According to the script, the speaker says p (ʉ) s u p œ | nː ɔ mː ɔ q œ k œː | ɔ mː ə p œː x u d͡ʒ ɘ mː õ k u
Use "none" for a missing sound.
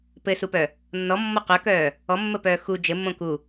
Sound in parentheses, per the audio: ɘ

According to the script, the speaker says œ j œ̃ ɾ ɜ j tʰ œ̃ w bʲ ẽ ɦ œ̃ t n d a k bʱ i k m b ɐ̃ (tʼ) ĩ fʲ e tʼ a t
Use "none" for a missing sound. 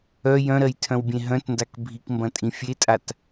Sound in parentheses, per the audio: tʼ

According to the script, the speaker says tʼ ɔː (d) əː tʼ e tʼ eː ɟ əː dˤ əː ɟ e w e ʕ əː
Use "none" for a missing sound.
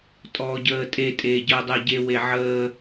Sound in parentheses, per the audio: ɟ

